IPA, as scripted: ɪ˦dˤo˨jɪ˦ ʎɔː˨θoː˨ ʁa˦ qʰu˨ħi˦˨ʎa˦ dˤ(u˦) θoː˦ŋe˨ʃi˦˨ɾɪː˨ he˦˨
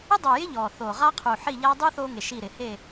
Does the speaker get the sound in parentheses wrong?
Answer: no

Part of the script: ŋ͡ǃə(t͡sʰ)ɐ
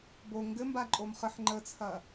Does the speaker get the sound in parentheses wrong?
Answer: no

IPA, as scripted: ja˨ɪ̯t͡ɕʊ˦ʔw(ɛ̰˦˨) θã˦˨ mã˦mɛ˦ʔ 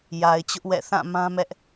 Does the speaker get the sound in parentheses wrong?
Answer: no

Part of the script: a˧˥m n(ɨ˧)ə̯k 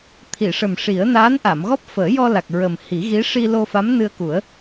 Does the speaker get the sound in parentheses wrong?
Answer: no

